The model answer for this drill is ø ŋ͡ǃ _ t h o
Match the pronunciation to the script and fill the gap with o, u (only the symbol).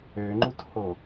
u